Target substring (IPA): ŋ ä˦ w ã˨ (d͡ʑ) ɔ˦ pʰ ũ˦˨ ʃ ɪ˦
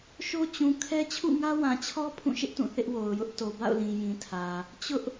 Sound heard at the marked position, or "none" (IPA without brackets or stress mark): t͡ɕʰ